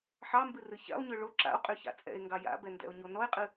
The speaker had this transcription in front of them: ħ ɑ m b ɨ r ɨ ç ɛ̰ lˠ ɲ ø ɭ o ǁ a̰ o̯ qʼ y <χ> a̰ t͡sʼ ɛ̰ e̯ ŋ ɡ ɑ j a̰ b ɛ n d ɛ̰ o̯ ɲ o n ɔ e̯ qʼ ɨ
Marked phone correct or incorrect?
incorrect